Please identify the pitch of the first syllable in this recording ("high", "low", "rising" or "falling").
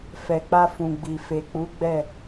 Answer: low